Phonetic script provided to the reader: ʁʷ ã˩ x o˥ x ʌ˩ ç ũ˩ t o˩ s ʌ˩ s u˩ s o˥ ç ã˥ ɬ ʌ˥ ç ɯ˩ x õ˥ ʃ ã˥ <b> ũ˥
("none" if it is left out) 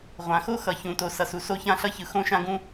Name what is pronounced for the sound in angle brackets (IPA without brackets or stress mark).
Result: ɡ